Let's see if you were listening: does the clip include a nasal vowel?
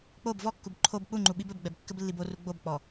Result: no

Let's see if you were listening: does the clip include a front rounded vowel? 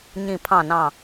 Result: no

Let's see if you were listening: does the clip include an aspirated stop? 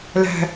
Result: no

